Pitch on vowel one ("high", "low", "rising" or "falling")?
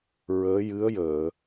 rising